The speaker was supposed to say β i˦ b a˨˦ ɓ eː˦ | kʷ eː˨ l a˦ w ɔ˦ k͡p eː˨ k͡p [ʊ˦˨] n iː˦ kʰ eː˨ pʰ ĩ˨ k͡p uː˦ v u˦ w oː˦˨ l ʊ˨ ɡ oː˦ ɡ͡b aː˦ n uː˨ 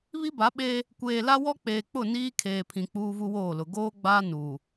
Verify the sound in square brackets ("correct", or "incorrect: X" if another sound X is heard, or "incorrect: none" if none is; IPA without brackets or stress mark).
correct